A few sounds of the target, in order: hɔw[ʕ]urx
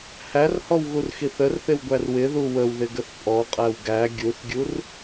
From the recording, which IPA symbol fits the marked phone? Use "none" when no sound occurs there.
ɣ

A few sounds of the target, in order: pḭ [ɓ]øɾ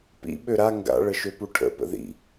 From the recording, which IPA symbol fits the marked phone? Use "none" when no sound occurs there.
ɓ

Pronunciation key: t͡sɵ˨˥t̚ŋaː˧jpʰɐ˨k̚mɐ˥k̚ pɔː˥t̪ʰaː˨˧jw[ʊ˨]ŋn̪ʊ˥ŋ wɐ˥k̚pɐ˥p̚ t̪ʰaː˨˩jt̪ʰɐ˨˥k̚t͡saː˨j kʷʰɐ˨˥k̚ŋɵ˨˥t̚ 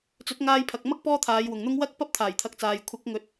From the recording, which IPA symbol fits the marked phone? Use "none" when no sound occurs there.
ʊ˨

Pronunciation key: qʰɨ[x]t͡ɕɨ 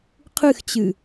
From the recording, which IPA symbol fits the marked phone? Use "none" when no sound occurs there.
x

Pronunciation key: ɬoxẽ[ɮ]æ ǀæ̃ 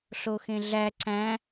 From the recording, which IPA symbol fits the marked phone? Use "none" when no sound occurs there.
ɮ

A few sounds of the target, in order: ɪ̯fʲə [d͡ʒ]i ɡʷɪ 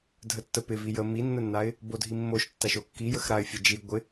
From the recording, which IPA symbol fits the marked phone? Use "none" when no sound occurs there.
d͡ʒ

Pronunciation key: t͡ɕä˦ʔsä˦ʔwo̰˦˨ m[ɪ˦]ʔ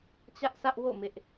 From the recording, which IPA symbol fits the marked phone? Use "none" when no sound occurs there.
ɪ˦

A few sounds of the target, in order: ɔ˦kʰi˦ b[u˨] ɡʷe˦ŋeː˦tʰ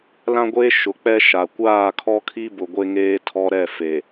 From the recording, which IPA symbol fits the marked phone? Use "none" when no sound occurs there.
ʊ˨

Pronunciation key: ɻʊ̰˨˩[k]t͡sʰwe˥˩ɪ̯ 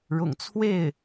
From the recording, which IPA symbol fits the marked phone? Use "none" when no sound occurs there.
ŋ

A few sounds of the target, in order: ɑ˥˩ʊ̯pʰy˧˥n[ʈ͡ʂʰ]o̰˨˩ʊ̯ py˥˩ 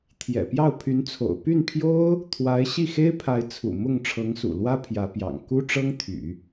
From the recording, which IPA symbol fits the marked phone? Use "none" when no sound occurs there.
t͡sʰ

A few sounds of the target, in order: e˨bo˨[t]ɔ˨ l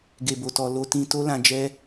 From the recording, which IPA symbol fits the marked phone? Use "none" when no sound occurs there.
t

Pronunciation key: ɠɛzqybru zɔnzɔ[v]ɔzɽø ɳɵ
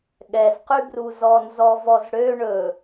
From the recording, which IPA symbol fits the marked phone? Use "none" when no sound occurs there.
v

